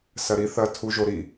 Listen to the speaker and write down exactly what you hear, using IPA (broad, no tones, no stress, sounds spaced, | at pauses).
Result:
s ɐ ɾ i θ ɐ tʰ u ʒ o ɾ i